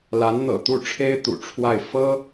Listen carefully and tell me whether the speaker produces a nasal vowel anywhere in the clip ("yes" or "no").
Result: no